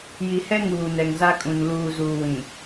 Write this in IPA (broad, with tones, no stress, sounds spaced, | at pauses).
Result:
j i˨ h ɛ˦ ŋ uː˨ n ɛ˨ ŋ z a˦ kʼ ũ˨ n l uː˨ z uː˨ w ĩ˨